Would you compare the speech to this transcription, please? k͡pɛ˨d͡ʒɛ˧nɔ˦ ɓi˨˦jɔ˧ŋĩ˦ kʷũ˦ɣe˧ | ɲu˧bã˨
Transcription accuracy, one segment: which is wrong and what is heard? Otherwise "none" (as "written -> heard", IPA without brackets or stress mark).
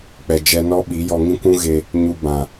none